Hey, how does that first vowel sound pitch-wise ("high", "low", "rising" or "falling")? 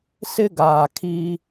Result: high